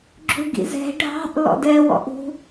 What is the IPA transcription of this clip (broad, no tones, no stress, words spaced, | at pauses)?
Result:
ɡ͡ǁuɡḭzɛ̤ ɖʱɑ̤ʔ lɔ̰dɛ wɔ̰ʔṳ